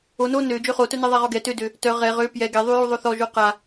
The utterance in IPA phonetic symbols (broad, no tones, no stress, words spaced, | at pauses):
o no nø d͡ʒøχotœnɛ ðˤaʁɔɡɛ tødø | tœ ʁɛ ʁø pjɛ ɡɛðˤyju ðˤoθɔʒo qa